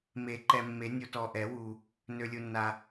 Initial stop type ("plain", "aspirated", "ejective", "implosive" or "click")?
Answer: click